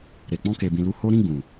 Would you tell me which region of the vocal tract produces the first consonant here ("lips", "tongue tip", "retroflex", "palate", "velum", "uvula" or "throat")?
tongue tip